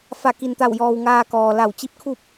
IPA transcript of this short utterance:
f a˧˩ k i˩ n t̪ a˧˩ w j ɔː˩ w ŋ aː˧ k ɔː˩ l a˧˩ w t͡ɕ i˧˥ p̚ kʰ u˥˨ p̚

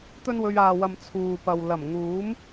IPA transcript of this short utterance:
t̪ ɵ˥ n w ɵ˧ ɥ aː˨ w ɐ˨ m t͡sʰ uː˨ p ɐ˨ w l ɐ˨˩ m ŋ uː˨˥ m

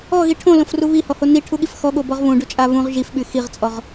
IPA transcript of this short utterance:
ɔ ɣ i ʈʰ õ l õ f r u β i h ɔ h o n i ʈʰ u ɠ i f x ɔ ɠ o b ɔ ʁ β ũ ɖ o t͡ʃʼ a β ũ ʁ ʒ i f ɓ y x i ʁ t͡sʼ ɔ ʁ

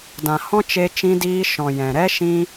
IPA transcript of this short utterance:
d ã˨ h ɔ̃˦ t͡ʃ e˧ t͡ʃ ĩ˧ d iː˧ ʃ ɔ̃˨ j ɛ̃˨ ɾ ɛ˦ ʃ ĩ˦

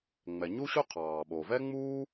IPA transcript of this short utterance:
ŋ͡m ɛ˩ ɲ u˥ ɕ ɵ˥ qʰ ɑː˩ ɓ o˩ v ɛ˥ ŋ͡m uː˥

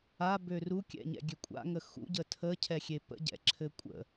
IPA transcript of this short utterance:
a b ø r u kʲ ɛ̰ ɲ ɛ̰ ɡʲ ø kʷʼ a̰ ŋ ə x ṵ ɟ ə tʰ ə cʰ ɛ xʲ e p ə̰ ɟ ɛ̰ ǁʰ ɘ kʷʼ ə̰

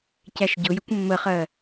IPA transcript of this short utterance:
c æ ʃ ɟ ʊ j ə kʷ mː ə χ ɜ

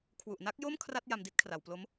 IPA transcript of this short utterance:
kʰ w u˨˩ ʔ n a˦˥ k̚ j o˥˩ m kʰ r a˥˩ t̚ j a˧ m d i˥˩ t̚ kʰ r a˩˦ w p l o˦˥ m

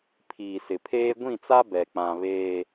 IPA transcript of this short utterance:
pʰ iː˨ s ɪ˨ pʰ eː˦ ɡʷ ĩ˦˨ t͡s a˦ b ɛ˨ k͡p ã˨ β eː˨

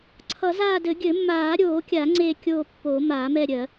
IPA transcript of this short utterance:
ǀʰ ʌ˨˩˦ z aː˦˨ d ɘ˨˩˦ ɡʲ ɘ˨˩˦ mː aː˨˩˦ ɾʲ oː˨˩˦ kʲ a˨˩˦ ŋ͡ǀ e˦˨ kʲ oː˦˨ pː oː˨˩˦ m aː˨˩˦ m ɛ˦˨ ɾʲ ɜ˨˩˦

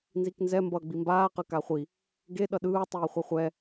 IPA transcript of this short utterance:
n z i k n z ɛ m b ʌː ɡ͡b i m b aː q ɯ k a χʷ i | ɡ e ɗ ʌ ɗ ɯː tˤ iː χʷ ɯ χʷ ɛ

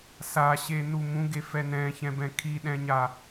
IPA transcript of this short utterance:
s a ɕ e n u m ũ ɡ e f ɛ n ɛ̃ ç ɛ̃ b ɛ̃ kʰ i ɗ ɛ̃ ɲ a

